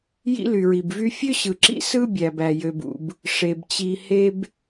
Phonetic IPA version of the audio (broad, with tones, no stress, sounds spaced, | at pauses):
j ḭ˥ l y˩ ɹ i˩ b v y˥ fʲ ø˥ ɕ ɯ˩ ǁ ḭ˥ s ɯ˥ bʲ æ˩ b æ˩ j ø˩ b ṵ˩ b | ʂ e˩ b t͡ɕ i˩ h e˥ b